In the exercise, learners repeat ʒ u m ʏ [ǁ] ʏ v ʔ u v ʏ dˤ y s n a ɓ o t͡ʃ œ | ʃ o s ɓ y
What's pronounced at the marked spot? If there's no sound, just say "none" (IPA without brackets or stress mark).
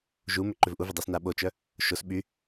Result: ǃ